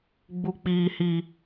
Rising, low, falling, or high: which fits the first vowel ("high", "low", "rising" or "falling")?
low